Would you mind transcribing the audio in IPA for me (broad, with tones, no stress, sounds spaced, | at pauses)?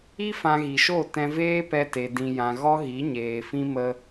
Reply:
i˦ f ã˧ ɣ i˨ ʃ o˦˨ t ɛ̃˧ v eː˦ p ɛ˧ t e˨ d ĩ˨ j ã˨ ɣ ɔ˦ ɣ i˨˦ ɲ eː˨ f ĩ˦ m ə˧